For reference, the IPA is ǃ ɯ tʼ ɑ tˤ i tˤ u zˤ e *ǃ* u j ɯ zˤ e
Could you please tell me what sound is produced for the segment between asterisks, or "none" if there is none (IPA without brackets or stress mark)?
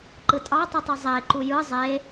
ǃ